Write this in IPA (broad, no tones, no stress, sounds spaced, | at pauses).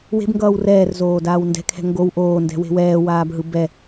w e̤ b ŋ ɡ ʌː w r ɛː r z oː d aː w n d ɛ̤ kʰ ɛ̤ ŋ ɡ o w ʔ oː n d ɛ̤ w e̤ w ɛː w aː b ɦ ɯ b ɛ